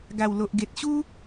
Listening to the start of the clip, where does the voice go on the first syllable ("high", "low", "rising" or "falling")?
low